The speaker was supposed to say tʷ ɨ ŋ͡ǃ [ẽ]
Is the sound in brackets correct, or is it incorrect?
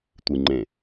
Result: correct